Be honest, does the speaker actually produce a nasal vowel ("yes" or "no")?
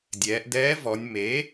no